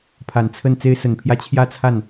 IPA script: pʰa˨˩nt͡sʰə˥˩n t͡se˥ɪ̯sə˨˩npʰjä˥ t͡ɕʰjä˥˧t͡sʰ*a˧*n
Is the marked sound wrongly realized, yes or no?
yes